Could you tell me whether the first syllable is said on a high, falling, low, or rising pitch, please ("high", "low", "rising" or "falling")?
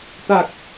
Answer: low